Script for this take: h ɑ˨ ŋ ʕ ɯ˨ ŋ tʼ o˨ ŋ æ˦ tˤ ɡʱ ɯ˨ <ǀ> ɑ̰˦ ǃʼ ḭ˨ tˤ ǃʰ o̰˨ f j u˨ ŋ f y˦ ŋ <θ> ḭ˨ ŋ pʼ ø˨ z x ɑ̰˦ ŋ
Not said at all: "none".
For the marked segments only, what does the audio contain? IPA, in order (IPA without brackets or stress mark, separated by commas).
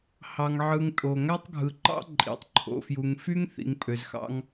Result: ǃ, θ